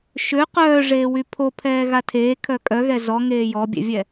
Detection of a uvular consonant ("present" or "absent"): present